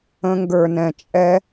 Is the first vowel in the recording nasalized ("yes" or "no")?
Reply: yes